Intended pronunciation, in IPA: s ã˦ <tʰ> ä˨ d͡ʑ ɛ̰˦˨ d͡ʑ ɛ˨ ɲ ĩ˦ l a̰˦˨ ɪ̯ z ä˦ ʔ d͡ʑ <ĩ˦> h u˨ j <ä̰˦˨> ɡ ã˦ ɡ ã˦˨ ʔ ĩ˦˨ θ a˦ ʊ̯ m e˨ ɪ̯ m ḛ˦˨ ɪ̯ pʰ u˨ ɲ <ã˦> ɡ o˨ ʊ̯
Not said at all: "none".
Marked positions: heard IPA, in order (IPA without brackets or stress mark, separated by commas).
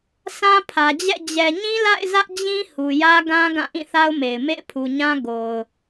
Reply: pʰ, ĩ˦, ä˦, ã˦